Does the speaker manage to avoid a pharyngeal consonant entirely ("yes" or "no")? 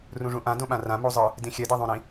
yes